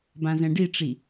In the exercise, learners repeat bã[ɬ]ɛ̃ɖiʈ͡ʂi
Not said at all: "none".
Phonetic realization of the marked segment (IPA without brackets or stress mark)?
z